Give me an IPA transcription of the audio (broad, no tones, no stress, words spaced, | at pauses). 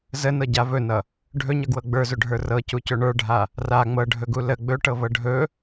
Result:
zənɤɟa vɵnʌ | ɖʱɵɲʌɡwɤ ɡ͡bə˞zɵɖʱə˞ rɤcucɵ ɳə˞ɖʱa | ra ŋ͡mɤɖʱɵɡu lə ɡ͡bɵʈɤvɤ ɖʱɵ